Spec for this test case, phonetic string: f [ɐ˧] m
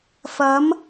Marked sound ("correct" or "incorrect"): incorrect